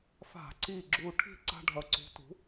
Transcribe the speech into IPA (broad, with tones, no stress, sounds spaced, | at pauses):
f a̤˧˩˧ ǀ i˧˩ ɡ͡ǁ u˧˩ ʈʰ i̤˥˩ ǀ a̤˦ ɖʱ ʌ˧˩ ǀ ṳ˨˥ t ṳ˨˥